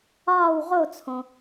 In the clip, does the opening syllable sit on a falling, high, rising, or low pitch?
falling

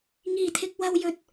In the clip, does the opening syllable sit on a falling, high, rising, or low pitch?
low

